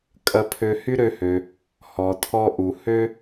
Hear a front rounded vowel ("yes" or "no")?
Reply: yes